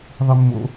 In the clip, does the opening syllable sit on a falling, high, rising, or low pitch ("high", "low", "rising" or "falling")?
low